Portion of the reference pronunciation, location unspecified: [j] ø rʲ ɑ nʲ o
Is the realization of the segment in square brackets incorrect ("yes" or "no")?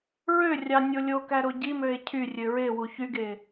yes